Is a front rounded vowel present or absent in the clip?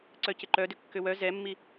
present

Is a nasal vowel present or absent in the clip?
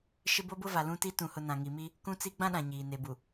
present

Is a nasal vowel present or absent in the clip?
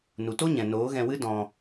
present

